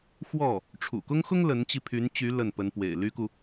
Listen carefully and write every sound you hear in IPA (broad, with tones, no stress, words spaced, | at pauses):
xwɔ˥˩ | ʈ͡ʂʰṵ˨˩kʊ˥ŋxʊ˥ŋ lə˧˥nt͡ɕi˧pʰy˧˥nt͡ɕy˧˥ lə˥˩npə˧˥npwḛ˨˩ɪ̯ ly˥ku˨